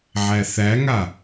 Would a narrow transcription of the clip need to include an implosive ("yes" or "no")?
no